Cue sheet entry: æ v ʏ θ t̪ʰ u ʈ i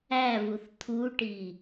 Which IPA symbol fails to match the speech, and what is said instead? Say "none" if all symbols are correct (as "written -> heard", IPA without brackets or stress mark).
ʏ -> u